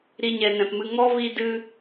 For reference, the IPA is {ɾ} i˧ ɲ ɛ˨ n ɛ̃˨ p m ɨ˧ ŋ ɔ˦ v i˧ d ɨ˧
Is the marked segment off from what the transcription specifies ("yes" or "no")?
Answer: no